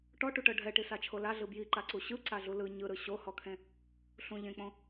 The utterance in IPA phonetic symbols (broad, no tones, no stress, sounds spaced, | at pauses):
ʈ ɔ ʈ u ʈ ɤ ɖʱ ɛ ʈ i s a t͡ʃʰ o l a ɮ ɯ b j i ǃ a ǀ u ɕ ɯ ǀ a ɮ u l ɯ ɲ ɯ ɾ ɯ ɕ o h ɔ kʰ ẽ | ɬ ũ ʎ ẽ k͡p õ